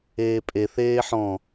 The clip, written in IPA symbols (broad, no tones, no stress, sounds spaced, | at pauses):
eː pʼ e θ eː ħ ɔ̃